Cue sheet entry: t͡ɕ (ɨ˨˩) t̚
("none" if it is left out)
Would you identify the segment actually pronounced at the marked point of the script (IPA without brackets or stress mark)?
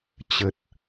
ə˨˩